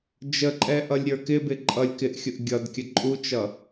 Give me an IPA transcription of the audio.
d͡ʒ ə ǃʼ ɛ ʔ ʌ lʲ ɾʲ ə˞ k ɪ b ɪ ǃʼ ʌ lʲ k ɪ ʔ xʲ ʊ ʔ ɡʲ ʌ d kʲ ə ǃʼ u t͡ʃ ʌ

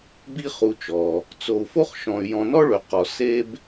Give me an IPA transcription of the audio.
b i˦ χ u˨ t͡ʃ ɔ˩ | t͡s o˨ u̯ f o˥ χ ʃ ɔ̃˨ y̯ j ɔ̃˨ n ɔ˥ ɭ ø˩ q ɔ˩ s e˥ b

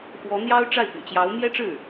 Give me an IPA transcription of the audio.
x w ɔ˧˥ n̪ j ɑ˥ ʊ̯ ʈ͡ʂ a˥˩ ɪ̯ p y̰˨˩ t͡ɕ j ɑ˧˥ ʊ̯ m j ɛ˥ ʈ͡ʂ ɻ̩˥˩

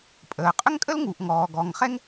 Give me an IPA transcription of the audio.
pʼ əː˩ qʼ ʏ˥ ŋ kʼ ə˥ l ŋ u˩ ʔ ŋ ɔː˩ ɡ ɔ˩ ŋ χ ɛ˥ ŋ

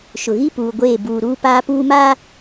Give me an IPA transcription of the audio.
ʃ ʊ˨ ɣ i˦ p uː˨ ɡʷ eː˦˨ b uː˨ ɾ uː˦ p aː˦ p uː˦ m aː˦

